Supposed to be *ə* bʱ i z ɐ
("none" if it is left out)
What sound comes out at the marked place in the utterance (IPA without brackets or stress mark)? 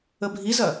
ə